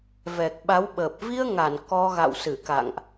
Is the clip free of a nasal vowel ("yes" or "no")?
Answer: yes